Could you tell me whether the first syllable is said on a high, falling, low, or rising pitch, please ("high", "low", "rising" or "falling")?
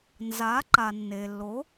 rising